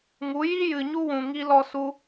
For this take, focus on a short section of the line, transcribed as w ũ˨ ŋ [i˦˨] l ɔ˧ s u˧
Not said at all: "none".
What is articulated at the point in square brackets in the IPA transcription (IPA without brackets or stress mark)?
i˧